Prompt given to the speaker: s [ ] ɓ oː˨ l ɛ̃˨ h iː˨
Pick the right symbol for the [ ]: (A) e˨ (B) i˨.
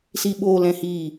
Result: B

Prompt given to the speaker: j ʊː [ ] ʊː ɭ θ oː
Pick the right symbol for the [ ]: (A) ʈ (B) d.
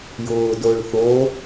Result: B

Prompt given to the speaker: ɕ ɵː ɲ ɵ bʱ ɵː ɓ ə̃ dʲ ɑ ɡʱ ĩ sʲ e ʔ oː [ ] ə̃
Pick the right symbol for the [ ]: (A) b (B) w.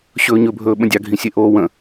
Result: B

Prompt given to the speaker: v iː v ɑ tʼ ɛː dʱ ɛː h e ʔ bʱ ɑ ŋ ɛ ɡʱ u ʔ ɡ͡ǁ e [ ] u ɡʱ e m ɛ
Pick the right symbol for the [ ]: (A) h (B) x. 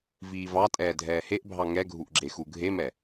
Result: B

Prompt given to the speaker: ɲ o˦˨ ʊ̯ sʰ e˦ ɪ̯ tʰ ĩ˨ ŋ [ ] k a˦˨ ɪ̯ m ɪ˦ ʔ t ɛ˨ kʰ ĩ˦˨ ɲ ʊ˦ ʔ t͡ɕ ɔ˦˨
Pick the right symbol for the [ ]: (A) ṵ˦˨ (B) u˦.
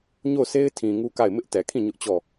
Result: B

